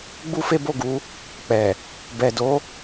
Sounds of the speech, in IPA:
ɡ͡b u˦ f e˦ b o˦˨ ɡ u˨˦ | k͡p ɛ˨ | b ɛ˨ d o˨˦

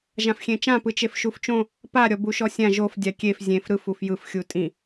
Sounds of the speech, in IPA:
ʒ ã f xʲ ẽ t͡ʃ ã p ɯ t͡ʃ e f ʃ u f t͡ʃ õ | p a ɾʲ ɔ b u ʃ ɔ sʲ ã ʒ o f dʲ a kʲ e f zʲ ẽ f ɾ ɯ f u f j ɯ f xʲ u tʼ ĩ

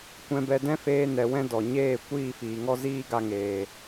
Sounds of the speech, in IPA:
kʷ ɛ̃˧ b ɛ˧ d ɛ̃˦ f eː˧ n ɛ˨ w ɛ̃˧ d ɔ˨ ɲ eː˦˨ kʷ iː˦˨ f iː˨ ŋ ɔ˦ z iː˦ ɡ a˧ ŋ eː˨

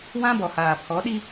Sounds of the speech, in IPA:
w ã˦ b ɔ˨ h aː˨ pʰ ɔ˨˦ ɗ i˦

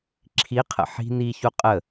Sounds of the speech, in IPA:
ǁʰ i qʰ ə̰ ħ i̤ n i ç u qʼ ə

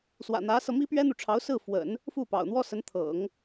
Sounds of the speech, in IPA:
s w ä̰˨˩ n̪ ä˧˥ s ɤ˧ m i˥ p ɥ ɛ˥ n̪ u˨ ʈ͡ʂʰ ɑ˧˥ ʊ̯ s ɹ̩˥˩ f w ə̰˨˩˦ n | f u˥˩ p ɑ̰˨˩ ʊ̯ n̪ w ɔ˥ s ə˧˥ n t̪ʰ ɤ̰˨˩˦ ŋ

